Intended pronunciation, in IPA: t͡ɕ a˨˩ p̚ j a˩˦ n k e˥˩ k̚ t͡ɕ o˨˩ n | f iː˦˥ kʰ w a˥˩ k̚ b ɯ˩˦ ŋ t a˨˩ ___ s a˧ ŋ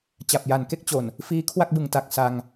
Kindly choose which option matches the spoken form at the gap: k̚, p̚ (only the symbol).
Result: k̚